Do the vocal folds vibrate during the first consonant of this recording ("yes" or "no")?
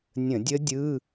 yes